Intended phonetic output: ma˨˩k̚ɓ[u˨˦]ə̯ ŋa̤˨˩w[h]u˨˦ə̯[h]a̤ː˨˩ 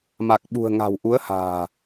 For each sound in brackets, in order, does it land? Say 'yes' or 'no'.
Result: no, no, yes

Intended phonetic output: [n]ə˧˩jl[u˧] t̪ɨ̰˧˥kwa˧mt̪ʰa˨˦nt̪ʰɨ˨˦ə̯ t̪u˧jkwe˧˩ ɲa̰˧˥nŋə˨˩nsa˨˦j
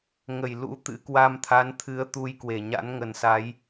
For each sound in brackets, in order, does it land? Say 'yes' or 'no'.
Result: no, no

